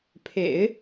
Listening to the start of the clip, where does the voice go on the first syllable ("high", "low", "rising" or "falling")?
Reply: low